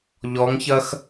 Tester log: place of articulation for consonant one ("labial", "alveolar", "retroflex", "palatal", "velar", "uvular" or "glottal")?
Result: palatal